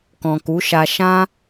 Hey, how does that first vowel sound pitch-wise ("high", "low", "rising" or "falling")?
low